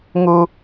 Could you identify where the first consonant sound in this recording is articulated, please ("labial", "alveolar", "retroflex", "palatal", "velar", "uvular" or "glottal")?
velar